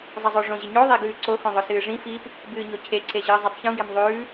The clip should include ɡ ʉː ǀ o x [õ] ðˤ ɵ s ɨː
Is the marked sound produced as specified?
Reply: yes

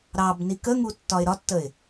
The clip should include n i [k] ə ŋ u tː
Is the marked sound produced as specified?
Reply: yes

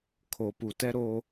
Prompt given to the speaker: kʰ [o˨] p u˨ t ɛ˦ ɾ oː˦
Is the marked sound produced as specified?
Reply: yes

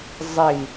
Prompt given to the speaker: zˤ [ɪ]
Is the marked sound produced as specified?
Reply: no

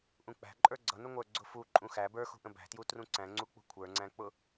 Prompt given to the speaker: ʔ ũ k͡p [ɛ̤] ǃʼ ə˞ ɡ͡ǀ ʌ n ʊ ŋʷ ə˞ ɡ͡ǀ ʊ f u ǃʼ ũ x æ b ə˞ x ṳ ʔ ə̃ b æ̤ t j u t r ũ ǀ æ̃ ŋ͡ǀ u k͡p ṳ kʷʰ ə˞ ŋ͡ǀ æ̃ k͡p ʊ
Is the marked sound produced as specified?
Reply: no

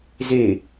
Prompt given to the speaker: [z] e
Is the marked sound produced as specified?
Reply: yes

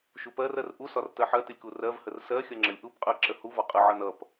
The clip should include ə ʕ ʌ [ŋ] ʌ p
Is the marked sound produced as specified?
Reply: no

